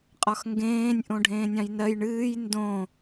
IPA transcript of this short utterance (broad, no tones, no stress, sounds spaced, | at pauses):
qʼ ɒ x ŋ ɡ ẽː nʲ ʔ õ ɖʱ ẽː nʲ ɑ̃ j n ɜ j ɳ ɨː j n d õ